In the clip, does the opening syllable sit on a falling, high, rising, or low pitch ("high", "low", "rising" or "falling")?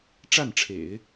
falling